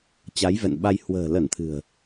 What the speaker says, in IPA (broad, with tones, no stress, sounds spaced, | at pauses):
t͡ɕ a˨˦ j v ɛ̰˧˨ n ɓ a˧ j h w ə̤ː˨˩ l ə˧˩ n t̪ʰ ɨ̤˨˩ ə̯